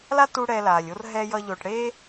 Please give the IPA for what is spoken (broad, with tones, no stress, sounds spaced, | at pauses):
l a˦ t u˦ ɽ ɛ˧ l aː˨ lʲ o˦ r ɦ ɛ˦ j ʌ˦ ʎ o˧ ʈ ɽ e˦